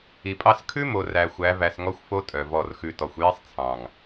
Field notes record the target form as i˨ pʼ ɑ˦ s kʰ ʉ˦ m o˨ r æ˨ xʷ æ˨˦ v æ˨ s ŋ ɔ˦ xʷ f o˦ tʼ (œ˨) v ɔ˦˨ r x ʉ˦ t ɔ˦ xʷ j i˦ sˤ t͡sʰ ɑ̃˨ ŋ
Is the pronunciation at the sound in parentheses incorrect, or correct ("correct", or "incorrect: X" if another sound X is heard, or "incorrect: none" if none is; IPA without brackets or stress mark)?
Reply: correct